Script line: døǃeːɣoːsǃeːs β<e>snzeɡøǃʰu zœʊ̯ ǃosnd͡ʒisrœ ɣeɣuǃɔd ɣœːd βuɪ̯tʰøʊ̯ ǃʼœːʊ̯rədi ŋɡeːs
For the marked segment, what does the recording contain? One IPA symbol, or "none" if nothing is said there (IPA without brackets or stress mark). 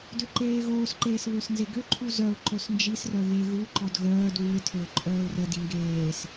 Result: ø